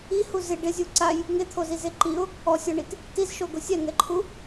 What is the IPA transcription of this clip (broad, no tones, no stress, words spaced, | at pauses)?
ihu zɪ ɖɪzʲu ǀaj | ŋet̪ʰozize ǃiʊ̯ | ɔsʲɔɳit | tizʃoɡʊ sʲɛŋɛǃʰu